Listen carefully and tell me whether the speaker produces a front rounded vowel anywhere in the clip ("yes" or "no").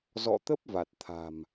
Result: no